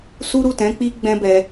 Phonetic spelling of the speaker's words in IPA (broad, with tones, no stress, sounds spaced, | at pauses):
s u˦ ɾ u˦˨ t ɛ̃˨˦ k͡p i˦ ɡ͡b ɛ̃˦ b ɛ˧